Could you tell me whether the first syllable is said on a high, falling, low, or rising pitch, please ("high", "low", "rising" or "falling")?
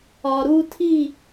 low